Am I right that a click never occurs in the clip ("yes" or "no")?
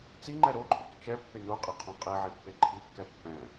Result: no